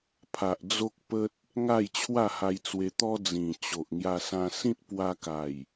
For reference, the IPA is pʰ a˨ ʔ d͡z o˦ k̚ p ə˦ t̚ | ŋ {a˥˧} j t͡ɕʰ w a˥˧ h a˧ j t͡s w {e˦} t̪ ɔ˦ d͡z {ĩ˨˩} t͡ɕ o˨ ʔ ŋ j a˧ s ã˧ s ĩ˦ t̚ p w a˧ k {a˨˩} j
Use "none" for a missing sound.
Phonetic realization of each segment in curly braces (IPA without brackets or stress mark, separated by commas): a˥˧, e˧, ĩ˨˩, a˨˩